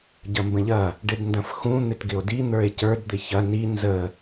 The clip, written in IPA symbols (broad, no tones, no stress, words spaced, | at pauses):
ɟɐmbə̃ʎɐ | ɖɪdndɐ̃fxũ n̪ɪtɡɪo̯di n̪ə˞e̯cə˞d d̪ɪçɐ ni nzə